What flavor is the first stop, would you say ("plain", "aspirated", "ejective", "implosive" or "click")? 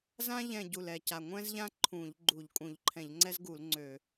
plain